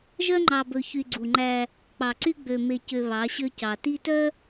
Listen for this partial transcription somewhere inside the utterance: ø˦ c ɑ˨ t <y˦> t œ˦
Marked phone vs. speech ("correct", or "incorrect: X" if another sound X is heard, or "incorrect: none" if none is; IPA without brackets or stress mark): incorrect: i˦